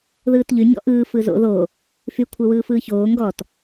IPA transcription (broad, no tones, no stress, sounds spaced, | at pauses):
ð ɯː t ʎ y ɲ ɔ̰ ʔ ɯː f ɯ z o̰ ð o | f y kʷʰ ɛ w ɯː f ɯː ç oː ŋ ɡ ɔ t